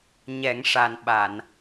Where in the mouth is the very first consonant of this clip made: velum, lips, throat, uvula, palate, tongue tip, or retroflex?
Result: palate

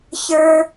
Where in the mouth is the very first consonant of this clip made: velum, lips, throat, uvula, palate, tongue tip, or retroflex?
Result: palate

